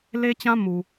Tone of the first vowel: high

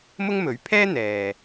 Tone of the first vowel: high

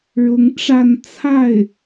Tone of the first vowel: rising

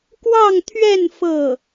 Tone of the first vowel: falling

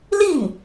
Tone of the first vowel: falling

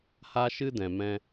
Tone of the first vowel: high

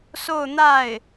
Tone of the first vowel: falling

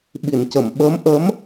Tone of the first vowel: low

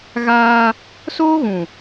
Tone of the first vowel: high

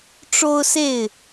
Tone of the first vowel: high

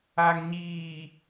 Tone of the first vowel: low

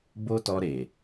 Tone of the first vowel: high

